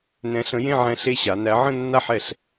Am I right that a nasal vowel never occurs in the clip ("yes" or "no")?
no